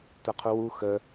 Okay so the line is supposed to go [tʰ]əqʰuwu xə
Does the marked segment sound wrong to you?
yes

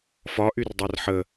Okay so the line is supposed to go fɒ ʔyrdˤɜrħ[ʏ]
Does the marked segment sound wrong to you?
yes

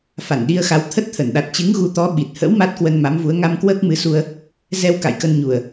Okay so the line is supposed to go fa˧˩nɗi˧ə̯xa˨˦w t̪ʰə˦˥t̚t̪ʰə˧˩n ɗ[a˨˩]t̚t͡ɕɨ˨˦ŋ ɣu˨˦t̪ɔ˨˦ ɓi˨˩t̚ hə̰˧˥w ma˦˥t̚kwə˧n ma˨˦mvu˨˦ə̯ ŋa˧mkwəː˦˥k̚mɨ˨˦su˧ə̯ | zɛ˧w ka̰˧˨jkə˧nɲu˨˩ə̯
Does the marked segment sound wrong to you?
no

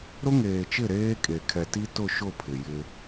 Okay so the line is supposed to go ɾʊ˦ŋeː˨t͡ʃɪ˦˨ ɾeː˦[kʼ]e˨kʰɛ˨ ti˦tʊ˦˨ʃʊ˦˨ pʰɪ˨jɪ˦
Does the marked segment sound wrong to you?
no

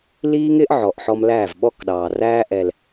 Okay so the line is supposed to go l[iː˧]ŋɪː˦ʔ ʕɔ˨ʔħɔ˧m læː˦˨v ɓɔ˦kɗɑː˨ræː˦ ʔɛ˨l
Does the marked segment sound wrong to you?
yes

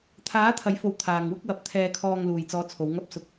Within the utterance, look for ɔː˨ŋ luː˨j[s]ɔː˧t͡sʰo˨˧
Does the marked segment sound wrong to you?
yes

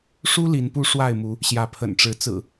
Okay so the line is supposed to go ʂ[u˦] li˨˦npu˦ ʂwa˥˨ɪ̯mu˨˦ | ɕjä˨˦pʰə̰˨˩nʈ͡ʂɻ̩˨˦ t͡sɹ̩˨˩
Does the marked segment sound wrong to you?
no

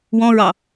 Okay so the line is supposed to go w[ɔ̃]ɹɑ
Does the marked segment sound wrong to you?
no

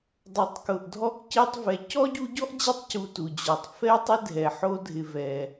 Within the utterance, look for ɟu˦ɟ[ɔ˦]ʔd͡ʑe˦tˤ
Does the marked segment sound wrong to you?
yes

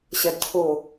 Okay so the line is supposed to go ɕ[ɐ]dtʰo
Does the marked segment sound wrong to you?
no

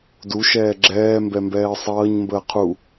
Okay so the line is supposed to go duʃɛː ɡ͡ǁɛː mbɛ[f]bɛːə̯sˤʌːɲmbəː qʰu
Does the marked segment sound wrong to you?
yes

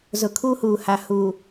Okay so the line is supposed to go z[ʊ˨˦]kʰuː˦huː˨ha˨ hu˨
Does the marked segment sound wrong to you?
yes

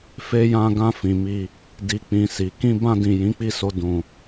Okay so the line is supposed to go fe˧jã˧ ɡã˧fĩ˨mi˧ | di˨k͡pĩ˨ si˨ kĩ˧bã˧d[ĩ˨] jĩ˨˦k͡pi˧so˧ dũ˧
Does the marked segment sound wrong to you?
no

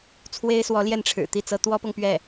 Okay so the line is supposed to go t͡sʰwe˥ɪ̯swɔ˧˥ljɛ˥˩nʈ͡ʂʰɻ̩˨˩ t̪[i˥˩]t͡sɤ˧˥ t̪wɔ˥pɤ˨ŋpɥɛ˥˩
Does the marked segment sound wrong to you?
no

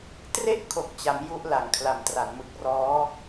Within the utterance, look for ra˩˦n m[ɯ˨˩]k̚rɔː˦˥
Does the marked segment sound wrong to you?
no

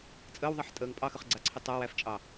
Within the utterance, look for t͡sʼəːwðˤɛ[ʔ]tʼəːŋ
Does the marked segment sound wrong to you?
yes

